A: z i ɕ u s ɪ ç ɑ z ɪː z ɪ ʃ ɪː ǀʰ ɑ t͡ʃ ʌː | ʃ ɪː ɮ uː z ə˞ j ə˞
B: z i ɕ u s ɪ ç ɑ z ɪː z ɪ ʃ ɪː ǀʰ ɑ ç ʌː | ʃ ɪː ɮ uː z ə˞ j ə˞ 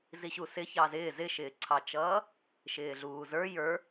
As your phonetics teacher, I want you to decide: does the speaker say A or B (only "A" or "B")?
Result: A